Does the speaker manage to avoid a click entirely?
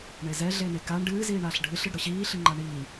no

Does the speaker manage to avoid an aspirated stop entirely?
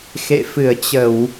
yes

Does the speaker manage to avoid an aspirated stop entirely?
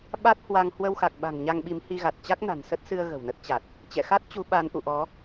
yes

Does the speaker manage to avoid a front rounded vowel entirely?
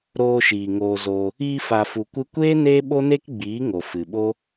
yes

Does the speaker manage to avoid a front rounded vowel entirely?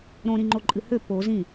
no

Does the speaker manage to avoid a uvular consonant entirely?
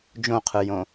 no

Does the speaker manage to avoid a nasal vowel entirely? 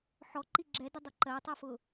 yes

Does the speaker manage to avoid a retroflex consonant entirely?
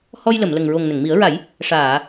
no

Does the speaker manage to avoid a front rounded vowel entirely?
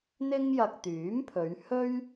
no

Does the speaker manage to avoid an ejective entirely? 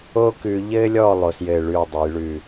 yes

